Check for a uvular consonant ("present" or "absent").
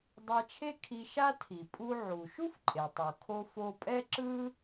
absent